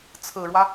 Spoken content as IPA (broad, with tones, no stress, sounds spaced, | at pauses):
t͡sʰ ɹ̩˨˩ ɻ w ä˦